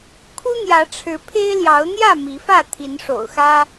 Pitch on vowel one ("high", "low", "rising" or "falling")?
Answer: high